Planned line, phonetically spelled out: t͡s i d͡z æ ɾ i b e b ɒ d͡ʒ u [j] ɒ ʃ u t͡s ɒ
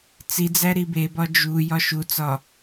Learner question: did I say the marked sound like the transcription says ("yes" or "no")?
yes